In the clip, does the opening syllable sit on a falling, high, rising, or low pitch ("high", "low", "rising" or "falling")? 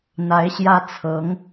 rising